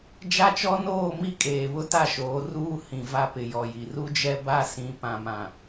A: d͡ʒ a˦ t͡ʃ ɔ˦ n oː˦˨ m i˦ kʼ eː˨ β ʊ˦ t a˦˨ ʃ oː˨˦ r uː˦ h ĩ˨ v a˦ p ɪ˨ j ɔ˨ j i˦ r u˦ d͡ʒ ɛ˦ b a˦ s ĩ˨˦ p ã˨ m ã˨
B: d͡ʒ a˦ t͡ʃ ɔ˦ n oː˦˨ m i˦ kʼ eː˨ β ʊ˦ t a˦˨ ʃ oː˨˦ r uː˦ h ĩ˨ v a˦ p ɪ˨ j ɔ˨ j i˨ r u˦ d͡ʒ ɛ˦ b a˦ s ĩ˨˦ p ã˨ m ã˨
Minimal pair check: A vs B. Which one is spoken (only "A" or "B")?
B